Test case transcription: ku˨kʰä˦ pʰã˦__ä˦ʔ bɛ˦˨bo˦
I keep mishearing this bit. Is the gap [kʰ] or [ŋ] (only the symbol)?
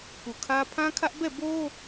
kʰ